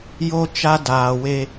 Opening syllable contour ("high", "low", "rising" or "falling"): high